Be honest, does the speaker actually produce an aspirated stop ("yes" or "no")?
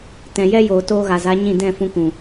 no